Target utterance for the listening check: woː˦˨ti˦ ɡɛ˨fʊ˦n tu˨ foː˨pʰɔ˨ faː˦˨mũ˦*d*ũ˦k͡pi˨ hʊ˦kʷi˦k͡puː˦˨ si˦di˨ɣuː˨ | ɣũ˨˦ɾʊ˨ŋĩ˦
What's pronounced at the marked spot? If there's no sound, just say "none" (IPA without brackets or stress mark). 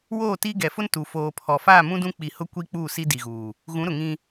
d